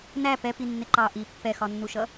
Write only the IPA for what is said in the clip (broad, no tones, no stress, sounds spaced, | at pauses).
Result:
n æ p ɛ p i nː ɪ ǃ ɑ ʔ i pː ɛ x ɒ nː u ʃ ʌ